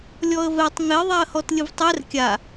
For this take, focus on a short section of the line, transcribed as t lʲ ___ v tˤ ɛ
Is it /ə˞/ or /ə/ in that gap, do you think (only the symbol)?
ə